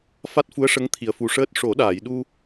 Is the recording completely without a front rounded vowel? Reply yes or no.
yes